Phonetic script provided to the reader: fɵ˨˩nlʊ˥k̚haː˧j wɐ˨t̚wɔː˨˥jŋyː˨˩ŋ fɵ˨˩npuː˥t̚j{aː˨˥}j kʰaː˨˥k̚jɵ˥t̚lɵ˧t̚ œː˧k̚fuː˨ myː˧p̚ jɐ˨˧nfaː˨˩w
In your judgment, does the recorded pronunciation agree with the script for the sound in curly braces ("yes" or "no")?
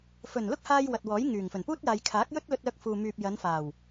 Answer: no